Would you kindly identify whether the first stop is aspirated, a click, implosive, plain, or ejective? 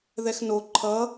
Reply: click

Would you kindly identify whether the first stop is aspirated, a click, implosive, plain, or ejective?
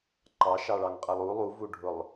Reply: click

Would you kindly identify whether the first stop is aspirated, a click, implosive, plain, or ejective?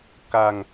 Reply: plain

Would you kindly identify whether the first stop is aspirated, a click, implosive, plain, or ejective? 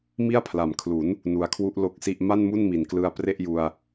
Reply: aspirated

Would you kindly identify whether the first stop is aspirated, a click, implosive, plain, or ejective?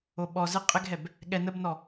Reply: implosive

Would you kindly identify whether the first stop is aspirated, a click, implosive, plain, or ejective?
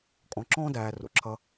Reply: ejective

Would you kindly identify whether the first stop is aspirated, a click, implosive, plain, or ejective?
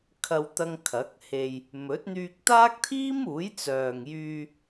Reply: aspirated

